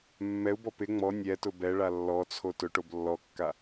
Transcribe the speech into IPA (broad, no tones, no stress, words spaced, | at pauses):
mːɛu̯bɔ pɪ ŋ͡mɔ nʲɛtʊ bɛɭa lːɔt͡sʰo tʊʈob lːɔkːa